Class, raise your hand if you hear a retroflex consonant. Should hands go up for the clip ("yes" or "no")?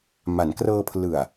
no